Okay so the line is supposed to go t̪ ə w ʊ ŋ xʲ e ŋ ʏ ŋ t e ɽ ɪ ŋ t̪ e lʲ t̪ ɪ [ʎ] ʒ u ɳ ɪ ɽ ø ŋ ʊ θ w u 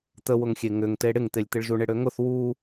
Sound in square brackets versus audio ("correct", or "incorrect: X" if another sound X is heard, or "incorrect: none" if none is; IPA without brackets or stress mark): incorrect: ɭ